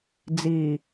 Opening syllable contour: low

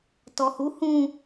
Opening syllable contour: low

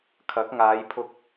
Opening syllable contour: rising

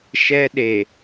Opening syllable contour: high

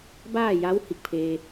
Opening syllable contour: falling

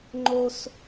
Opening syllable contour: high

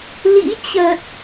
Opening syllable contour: rising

